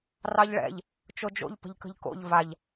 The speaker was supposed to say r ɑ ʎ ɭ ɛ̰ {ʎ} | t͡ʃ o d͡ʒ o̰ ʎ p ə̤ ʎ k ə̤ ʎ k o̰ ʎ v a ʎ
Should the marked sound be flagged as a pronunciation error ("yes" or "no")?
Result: no